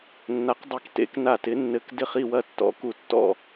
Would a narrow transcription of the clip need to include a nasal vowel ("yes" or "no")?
no